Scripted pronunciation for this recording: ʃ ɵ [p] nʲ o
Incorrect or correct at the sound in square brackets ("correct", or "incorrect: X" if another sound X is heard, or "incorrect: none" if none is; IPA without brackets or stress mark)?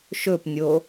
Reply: correct